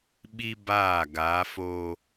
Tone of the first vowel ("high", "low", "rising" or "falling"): high